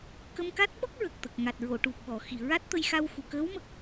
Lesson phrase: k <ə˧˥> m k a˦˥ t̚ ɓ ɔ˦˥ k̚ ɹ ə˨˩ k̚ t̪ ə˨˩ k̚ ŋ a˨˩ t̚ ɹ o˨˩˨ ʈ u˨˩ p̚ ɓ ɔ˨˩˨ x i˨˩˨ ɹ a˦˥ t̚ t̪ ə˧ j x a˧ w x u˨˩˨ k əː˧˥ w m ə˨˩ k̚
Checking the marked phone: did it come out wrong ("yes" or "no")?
yes